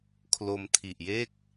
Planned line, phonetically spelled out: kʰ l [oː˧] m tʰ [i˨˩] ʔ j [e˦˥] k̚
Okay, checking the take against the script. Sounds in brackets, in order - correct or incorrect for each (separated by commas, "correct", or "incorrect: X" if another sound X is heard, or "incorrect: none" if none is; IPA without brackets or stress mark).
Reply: incorrect: o˧, correct, incorrect: e˥˩